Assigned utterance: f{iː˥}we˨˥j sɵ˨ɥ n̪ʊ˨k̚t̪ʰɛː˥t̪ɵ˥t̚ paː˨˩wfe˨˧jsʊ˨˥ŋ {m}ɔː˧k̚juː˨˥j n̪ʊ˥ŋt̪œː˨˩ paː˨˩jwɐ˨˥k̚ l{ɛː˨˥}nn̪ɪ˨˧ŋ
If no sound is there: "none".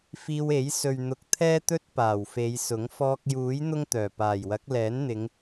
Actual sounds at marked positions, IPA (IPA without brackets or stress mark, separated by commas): iː˧, f, ɛː˨˥